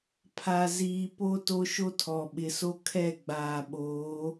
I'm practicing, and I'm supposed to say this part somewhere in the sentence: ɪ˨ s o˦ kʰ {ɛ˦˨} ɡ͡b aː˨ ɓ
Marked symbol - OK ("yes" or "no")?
yes